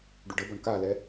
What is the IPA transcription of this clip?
ɖ u ɖ ə b ɔ ɳ k a l ɛ

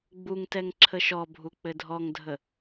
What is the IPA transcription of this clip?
ɡ͡b u ŋ t ɛ ŋ ǁʰ ə ʃ ɔ bʱ u k͡p ɘ dʱ ɔ ŋ dʱ ə

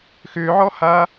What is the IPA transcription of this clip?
x ʏː ʕ ɔ h aː

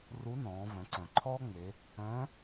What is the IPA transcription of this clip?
r u˧˥ n ɔ̃ː˩˧ v œ̃˩˧ ǀ œ̃˩ ǃʰ ɔː˥ ŋ͡m e˩˧ | œ̃˧˥

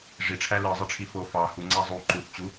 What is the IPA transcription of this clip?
ʐ i ʈ͡ʂʰ æ l ɯ zˤ ɯ ʈ͡ʂʰ i f o f ɑ h u ŋ͡ǀ æ zˤ u ǃ u θ t͡ɕ u

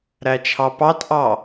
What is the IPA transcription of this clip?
ɾ æ t͡ʃʰ ɑ p ɑ t ʔ ɑ

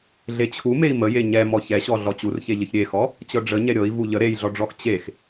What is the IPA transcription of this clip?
ɮ e t͡ɕʰ u m e i̯ m ə j e ɲ ɛ m ɔ ç ɛ ɕ ɔ ɮ ɔ t͡ɕ u r ç e ʎ ə ç ɾʲ e x ɔ | t͡ɕ ɤ ɖ͡ʐ ə ɲ ɛ ɾʲ ɤ i̯ v u ʎ ə ɾ e j ɮ ɔ ɖ͡ʐ ɔ x t͡ɕ e x

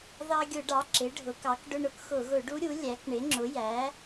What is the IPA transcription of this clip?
ð ɑ˧ ɡʲ ʊ˧˩˧ ɖ ɑ˩˥ ǁ ɪ˩˥ ɖʱ ʊ˩˥ k ɑ˩˥ k ɖ ʊ˧ ɳ ʊ˩˥ k x ʊ˧˩˧ ɣ ʊ˧˩˧ ɖ u˦˥ ɾʲ u˩˥ lʲ æ˩˥ k ɳ ɪ˩˥ ŋ͡ǁ ʊ˩˥ j æ˩˥

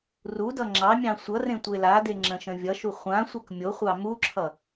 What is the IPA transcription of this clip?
r u d ʌ ŋ͡ǁ ɑ mʲ ɑ̃ sʷ ʌ r ẽ tʷ e l a d e ŋ͡ǁ ə̃ ʃ ə̃ vʲ ʌ ʃ u χʷ ã sʷ ʌ k mʲ o χʷ ɑ m u ǁʰ ʌ

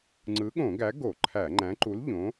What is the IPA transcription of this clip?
ŋ͡ǀ ɯ˨˥ ɠ õ˧˩˧ ɡ æ˨˥ ɡ o˧˩˧ ǃʰ æ˧˩˧ ŋ͡ǃ æ̃˨˥ ǃ u˨˥ l ʎ õ˨˥

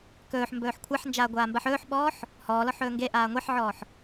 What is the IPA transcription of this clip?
k ɵː ħ m b ɵː ħ kʷʰ a ħ n d͡ʒ aː ɡʷ aː m b a ħ ɵː ħ ɓ ɔː ħ | h ɔː l ɔ ħ ɵː ŋ ɡ e ʔ aː ŋʷ e ħ ʕ ɔː ħ

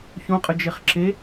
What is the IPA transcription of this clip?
ç õ qʼ ə d͡ʒ e χ ǁ e

